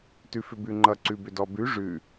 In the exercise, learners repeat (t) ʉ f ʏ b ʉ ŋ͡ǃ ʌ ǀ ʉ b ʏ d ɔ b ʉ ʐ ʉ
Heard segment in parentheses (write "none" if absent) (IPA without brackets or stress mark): t